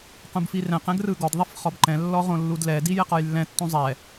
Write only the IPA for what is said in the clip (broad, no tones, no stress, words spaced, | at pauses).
qũbfirɛ̃q ɛ̃ɡrɯɡɔd ðˤifχɔbǃɛ̃ lːɔʁõlːudlɛ dijɛqɔjlːɛ̃ tːũzˤɛ